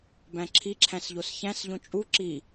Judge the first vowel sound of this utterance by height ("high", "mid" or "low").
low